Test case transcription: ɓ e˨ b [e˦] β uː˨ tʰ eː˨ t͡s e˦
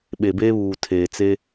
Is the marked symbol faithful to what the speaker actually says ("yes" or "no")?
no